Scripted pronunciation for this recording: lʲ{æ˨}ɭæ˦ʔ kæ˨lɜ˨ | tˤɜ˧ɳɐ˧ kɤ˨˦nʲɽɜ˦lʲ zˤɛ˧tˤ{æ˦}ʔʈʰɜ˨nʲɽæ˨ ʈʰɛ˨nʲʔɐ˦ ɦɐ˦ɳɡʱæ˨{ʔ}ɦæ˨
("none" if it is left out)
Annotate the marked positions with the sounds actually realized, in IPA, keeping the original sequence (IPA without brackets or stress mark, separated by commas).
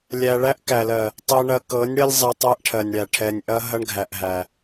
æ˨, æ˦, ʔ